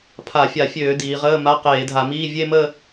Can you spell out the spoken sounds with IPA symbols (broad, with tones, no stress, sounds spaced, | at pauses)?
pʰ a˧˩˧ fʲ a˧˩˧ fʲ øː˧˩˧ d iː˩˧ ʁ əː˧˥˧ m a˧˥˧ q eː˧˩˧ dʱ a˧˩˧ m iː˧˥˧ vʲ e˥˧ m ə˥˧